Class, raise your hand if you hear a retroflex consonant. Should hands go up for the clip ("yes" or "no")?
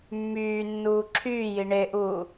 yes